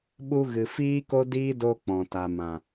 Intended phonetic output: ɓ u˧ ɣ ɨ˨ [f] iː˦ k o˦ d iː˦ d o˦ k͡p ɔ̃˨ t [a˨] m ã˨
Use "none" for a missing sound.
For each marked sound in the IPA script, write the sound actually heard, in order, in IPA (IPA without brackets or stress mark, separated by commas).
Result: f, a˨